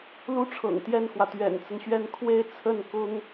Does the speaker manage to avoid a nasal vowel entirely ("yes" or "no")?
yes